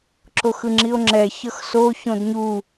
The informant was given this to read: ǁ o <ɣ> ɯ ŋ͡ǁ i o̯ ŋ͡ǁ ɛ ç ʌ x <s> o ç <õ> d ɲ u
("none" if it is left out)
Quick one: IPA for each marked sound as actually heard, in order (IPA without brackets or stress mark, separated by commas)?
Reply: x, s, õ